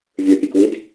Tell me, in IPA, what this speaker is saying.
vʲ ə˞ pʲ ɛ k w i d

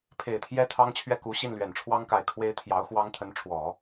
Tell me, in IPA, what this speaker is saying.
pʰ e˨˩ ɪ̯ t̪ʰ j ɛ˥ t̪ʰ ɑ˥ ŋ t͡ɕʰ ɥ ɛ˥˩ k u˧˥ ɕ i˥˩ n l ɥ ɛ˨˩ n ʈ͡ʂʰ w ɑ˥ ŋ k a˧˥ ɪ̯ kʰ w e˥ ɪ̯ t̪ʰ j ɑ˧˥ ʊ̯ x w ɑ˥ ŋ t̪ʰ ə˧˥ n ʈ͡ʂʰ w ɔ˨˩˦

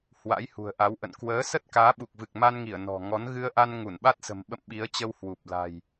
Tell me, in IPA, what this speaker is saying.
h w a̰˧˥ j h ṳ˨˩ ə̯ ʔ a˨˦ w ʔ ə̰˧˨ n k w əː˨˦ s ə˦˥ t̚ k aː˨˦ ɓ u˨˩ k̚ v ɨ˨˩ k̚ m a˧ n ŋ i˧˩ ə̯ n ɔ̤˨˩ ŋ ɔ˨˦ n ɣ ɨ˧ ə̯ ʔ a˧ n ŋ u˧˩ n ɓ a˦˥ t̚ s ə̤˨˩ m ɓ ə̰˧˨ m ɓ i˨˦ ə̯ t͡ɕ ə˧ w h w u˨˩ p̚ l a̤˨˩ j

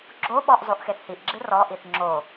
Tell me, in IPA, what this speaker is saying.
ɡ͡ǁ o ɓ ɔ ʔ zˤ o ʔ x e θ h i ʔ ɡ͡ǁ ɨ r ɔ ʔ i θ ŋ͡ǁ o

